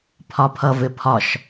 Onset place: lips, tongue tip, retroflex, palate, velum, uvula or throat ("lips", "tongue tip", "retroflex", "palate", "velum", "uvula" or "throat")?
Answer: lips